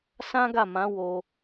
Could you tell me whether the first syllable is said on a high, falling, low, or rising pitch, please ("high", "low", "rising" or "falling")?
high